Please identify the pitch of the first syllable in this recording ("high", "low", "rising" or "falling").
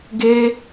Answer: high